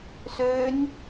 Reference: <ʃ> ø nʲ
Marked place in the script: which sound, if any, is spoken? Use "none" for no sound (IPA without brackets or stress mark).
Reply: s